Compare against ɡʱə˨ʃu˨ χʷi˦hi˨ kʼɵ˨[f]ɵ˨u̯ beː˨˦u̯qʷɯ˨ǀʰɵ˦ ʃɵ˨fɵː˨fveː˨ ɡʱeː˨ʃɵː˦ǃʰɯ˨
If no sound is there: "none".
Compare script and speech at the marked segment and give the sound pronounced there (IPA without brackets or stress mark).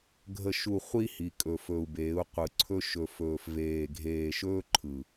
f